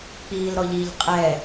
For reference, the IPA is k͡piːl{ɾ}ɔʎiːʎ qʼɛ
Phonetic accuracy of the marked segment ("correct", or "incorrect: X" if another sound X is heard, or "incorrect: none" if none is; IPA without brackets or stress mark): correct